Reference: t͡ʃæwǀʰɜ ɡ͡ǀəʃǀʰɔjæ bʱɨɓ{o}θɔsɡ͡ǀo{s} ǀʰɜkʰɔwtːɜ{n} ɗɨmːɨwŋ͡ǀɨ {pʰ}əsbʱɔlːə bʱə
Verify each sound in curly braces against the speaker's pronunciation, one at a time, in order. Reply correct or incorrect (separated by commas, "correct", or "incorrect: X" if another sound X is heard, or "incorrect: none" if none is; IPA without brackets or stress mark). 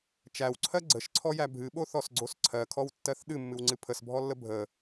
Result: correct, correct, incorrect: θ, correct